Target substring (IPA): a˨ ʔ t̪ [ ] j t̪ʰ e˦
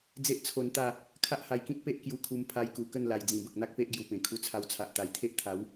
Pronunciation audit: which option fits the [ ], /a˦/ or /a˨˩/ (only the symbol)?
a˨˩